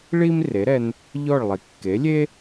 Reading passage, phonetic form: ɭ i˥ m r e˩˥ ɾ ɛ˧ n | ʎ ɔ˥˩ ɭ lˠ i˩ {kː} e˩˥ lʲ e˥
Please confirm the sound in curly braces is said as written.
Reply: yes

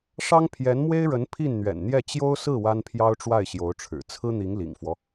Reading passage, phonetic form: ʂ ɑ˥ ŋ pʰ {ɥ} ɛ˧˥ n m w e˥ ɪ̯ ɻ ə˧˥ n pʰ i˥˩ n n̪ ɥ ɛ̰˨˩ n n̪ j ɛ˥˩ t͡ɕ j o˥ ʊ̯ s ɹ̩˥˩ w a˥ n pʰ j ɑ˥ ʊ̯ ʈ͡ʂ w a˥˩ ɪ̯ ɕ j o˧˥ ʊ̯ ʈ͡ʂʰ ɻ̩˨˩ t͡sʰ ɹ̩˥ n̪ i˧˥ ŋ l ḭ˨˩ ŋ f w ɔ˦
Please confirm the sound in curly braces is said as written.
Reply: no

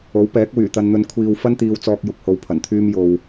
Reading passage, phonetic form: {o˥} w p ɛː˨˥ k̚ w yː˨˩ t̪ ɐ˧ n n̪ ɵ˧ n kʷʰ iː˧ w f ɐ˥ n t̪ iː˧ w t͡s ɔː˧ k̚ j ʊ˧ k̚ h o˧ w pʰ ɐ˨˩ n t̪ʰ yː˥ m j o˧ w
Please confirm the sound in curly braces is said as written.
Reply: no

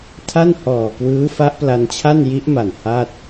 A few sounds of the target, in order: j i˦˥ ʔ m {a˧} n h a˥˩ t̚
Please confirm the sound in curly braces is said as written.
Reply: no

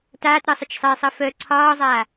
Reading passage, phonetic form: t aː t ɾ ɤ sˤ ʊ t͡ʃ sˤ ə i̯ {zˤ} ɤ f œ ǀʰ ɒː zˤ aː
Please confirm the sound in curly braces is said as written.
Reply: no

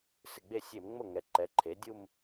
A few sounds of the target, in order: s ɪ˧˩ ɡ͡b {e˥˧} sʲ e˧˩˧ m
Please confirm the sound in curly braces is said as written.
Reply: no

